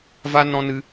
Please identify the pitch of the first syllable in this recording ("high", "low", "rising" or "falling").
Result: high